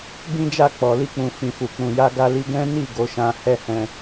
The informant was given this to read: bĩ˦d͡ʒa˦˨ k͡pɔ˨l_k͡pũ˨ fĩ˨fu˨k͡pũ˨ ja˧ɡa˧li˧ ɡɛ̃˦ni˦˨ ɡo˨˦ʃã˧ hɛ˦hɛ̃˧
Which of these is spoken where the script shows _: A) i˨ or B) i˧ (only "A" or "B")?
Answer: B